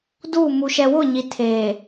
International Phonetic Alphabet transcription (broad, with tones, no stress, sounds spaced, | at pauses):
d uː˦˨ m u˨ ʃ ɛ˨ w ʊ˦˨ ɲ i˨ tʰ eː˨